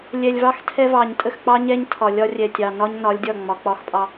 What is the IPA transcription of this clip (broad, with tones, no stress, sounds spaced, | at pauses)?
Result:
lʲ ɛ˨ lʲ v ɑ˦ x tʰ ɛ˦ v ɑ˨ ɲ tʼ ə˦˨ x k͡p ɑ˦ ɲ ɛ˦ ɲ tʰ ɒ˨ lʲ ɒ˦ rʲ ɛ˨ tʲ ɑ˨ n ɒ˦ ɲ n ɒ˨˦ lʲ dʲ ɒ˦˨ ŋ͡m ɒ˨ k͡p ɒ˦ x pʼ ɑ˦